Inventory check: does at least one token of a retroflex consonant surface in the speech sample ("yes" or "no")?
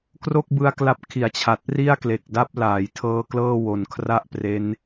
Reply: no